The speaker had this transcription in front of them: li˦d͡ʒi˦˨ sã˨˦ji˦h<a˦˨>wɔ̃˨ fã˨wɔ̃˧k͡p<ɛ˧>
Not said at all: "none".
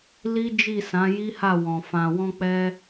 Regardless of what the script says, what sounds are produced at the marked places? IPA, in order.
a˦˨, ɛ˧

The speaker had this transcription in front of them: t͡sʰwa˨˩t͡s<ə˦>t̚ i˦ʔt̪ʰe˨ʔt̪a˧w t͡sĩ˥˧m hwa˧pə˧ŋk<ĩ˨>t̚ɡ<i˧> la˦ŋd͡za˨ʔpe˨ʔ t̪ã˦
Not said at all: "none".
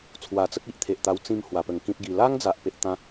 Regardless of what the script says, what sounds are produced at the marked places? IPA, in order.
ə˦, ĩ˦, i˧

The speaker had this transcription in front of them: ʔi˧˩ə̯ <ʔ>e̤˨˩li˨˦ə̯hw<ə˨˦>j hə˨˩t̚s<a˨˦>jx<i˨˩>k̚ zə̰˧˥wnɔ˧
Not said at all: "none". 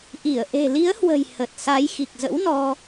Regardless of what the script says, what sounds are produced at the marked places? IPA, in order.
ʔ, ə̤˨˩, a˨˦, i˨˩

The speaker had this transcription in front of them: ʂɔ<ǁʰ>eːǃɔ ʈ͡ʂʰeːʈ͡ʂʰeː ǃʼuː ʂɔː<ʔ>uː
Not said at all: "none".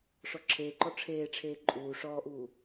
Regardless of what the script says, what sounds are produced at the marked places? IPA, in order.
ǁʰ, ʔ

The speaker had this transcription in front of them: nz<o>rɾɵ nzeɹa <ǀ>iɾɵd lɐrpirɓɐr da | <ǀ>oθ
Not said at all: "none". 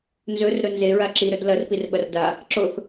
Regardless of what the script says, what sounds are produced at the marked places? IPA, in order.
ɵ, ǁ, ǁ

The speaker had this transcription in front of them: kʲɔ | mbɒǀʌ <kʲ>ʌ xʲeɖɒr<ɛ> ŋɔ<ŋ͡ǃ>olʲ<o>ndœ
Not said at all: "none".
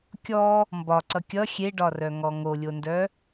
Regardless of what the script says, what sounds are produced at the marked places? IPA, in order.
kʲ, œ, ŋ, o

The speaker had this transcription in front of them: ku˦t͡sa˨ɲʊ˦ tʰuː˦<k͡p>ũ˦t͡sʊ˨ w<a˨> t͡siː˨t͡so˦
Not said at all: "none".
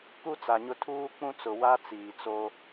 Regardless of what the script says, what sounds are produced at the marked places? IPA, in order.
k͡p, a˦

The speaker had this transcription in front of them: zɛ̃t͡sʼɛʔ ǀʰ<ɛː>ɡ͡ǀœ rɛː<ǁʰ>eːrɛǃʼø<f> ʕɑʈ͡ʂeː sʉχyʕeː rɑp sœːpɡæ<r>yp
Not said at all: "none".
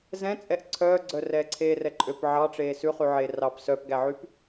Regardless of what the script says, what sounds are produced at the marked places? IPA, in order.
œː, ǀʰ, p, ʕ

